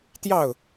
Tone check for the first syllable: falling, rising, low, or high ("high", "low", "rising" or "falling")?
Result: falling